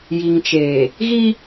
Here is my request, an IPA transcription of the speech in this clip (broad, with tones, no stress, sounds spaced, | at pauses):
j i˨ ŋ t͡ʃ eː˨ | ɣ i˦